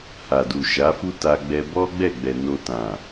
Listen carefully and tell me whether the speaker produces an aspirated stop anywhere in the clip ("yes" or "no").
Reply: no